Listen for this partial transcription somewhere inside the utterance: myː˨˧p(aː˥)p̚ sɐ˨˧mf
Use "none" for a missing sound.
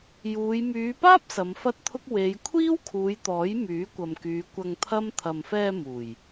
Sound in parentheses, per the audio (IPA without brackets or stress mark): aː˥